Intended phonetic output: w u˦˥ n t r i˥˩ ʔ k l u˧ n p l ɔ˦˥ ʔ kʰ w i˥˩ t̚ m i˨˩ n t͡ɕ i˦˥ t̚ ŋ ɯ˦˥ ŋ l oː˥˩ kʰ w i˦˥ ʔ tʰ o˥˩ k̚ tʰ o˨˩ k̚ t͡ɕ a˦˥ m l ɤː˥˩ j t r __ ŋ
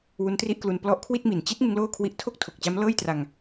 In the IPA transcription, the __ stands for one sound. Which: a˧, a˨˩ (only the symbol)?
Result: a˧